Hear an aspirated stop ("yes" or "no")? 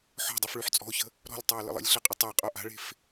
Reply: no